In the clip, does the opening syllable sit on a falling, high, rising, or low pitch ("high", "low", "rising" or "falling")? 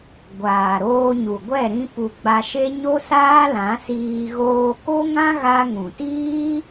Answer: low